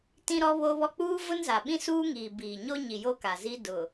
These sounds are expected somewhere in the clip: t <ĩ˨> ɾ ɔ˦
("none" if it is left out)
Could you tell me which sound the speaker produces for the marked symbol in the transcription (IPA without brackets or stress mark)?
ĩ˦